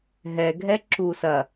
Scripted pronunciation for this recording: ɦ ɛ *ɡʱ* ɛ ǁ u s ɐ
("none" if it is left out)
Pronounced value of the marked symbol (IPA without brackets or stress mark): ɡʱ